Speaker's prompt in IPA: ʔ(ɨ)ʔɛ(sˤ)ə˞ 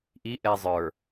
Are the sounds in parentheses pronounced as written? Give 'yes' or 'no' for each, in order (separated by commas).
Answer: no, no